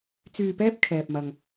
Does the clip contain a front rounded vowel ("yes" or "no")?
yes